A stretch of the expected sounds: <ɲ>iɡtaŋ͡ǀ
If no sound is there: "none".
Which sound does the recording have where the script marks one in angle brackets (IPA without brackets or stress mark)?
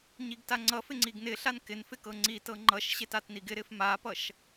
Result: ɲ